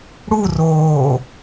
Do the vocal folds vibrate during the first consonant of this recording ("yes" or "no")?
yes